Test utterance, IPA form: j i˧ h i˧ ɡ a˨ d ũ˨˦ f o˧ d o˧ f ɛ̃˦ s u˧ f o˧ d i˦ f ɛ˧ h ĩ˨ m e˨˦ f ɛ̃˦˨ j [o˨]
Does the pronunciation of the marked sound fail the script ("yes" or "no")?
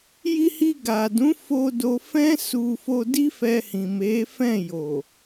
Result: no